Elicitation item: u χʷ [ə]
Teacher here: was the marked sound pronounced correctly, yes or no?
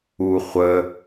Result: yes